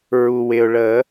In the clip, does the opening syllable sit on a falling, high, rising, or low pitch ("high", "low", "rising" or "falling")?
low